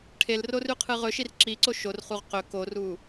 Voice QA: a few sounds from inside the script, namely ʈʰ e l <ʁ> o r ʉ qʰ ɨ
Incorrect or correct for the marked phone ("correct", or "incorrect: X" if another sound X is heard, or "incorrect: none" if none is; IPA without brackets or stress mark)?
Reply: incorrect: r